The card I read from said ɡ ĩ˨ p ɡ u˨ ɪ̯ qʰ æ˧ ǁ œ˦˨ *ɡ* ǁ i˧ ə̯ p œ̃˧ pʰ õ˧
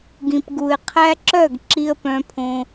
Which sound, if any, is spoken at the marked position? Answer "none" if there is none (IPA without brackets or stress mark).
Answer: ɡ